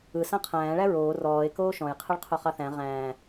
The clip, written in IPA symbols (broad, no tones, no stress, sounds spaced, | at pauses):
ɯ s ã qʰ æ̃ː ɭ æ ɹ oː r ɔː e̯ k oː ʃ ɔ̃ j qʰ ɯ ɭ qʰ o χ ɑ θ æ̃ ʁ æ̃ː